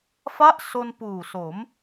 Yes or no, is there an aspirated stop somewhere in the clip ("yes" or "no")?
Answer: no